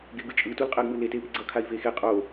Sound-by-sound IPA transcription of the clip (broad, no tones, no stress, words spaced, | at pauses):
ɡeɡɯt͡ʃʼɯ tulqʼɛɡmɯle tepiɡ͡ǀʌ kʰai̯vexe qʼo